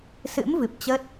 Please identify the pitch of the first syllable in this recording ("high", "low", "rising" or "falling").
rising